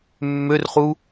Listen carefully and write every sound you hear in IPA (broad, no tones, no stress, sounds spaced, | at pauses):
mː ø r χ u